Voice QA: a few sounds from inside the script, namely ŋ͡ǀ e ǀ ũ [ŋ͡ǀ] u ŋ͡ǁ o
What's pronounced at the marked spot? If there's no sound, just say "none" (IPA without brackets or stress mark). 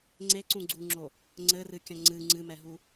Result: ɡ͡ǀ